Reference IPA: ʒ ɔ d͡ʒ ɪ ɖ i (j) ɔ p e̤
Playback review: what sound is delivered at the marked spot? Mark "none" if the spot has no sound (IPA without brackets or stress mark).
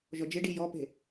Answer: j